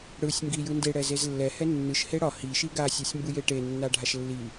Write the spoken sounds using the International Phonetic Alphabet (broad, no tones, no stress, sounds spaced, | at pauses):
ɽ ɯ sʲ ŋ ɡ i j ɯ n d e ɽ ɛ z e z lː ɛ h ɛ nː ɯ ʃ h e ɽ ɒ h i ʃ i ɡ a sʲ ɒ sʲ m b ɯ j e ʈ e nː a ɖʱ a ʃ lː i